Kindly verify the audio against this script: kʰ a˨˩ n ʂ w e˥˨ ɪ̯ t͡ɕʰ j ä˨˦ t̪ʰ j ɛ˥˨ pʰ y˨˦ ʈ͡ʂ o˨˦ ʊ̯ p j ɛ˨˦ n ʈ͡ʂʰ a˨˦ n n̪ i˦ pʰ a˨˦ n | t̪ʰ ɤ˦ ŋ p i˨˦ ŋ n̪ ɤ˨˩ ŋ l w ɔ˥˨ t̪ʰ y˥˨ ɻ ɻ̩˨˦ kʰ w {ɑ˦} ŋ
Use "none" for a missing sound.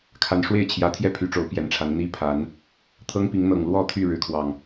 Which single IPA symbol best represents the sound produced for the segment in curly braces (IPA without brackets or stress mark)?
ɑ˨˩